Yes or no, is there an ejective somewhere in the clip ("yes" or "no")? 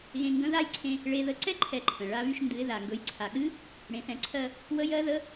no